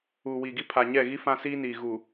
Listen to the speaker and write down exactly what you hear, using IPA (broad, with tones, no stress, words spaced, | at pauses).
uː˨wiː˨ɡi˦ pʰa˨ɲɛ˦˨ɣi˦ fã˦siː˦niː˨ ɣu˨